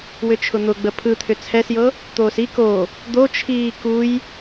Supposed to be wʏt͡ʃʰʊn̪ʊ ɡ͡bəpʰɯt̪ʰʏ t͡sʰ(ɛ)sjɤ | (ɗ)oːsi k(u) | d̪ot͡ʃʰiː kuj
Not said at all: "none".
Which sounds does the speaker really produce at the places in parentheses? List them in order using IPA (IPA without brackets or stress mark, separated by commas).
ɛ, t̪, o